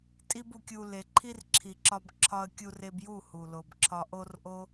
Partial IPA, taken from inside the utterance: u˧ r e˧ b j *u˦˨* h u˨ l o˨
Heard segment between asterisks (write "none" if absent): u˦˨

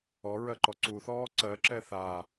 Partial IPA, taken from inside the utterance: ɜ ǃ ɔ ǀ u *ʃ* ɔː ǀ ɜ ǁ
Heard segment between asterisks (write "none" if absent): θ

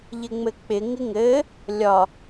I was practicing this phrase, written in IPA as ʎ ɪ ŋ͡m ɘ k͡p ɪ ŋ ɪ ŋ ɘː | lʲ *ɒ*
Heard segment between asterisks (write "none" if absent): ɒ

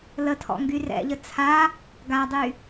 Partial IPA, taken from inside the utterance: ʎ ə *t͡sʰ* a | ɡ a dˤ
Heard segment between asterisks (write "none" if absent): t͡sʰ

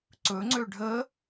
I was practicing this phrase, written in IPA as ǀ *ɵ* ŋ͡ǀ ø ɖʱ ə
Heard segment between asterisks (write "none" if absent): ɵ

